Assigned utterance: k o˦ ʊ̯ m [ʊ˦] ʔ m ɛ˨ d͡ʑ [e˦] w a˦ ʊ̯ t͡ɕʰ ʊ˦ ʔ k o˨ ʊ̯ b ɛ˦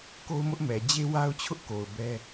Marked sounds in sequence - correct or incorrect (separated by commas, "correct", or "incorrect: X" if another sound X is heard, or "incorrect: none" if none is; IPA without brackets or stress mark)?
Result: correct, correct